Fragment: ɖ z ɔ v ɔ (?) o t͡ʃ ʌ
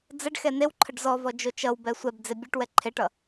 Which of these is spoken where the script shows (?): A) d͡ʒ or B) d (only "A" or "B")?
A